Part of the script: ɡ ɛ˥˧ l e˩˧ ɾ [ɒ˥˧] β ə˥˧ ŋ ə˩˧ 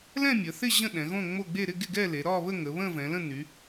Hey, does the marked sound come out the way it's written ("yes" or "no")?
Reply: yes